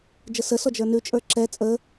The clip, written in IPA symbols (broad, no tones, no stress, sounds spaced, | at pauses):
d͡ʒ ə s ə s ɔ d͡ʒ ə˞ n ʉ t͡ʃʼ ə˞ ǁ ɛ t͡sʼ ə